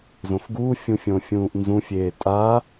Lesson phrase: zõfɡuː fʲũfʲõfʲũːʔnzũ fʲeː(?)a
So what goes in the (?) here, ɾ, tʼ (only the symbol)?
tʼ